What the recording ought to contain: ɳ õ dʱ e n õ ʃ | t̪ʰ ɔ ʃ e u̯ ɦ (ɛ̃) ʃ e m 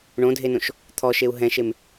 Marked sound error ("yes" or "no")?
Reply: no